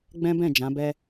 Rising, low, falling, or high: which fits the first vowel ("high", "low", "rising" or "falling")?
high